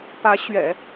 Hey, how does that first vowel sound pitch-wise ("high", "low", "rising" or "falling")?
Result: rising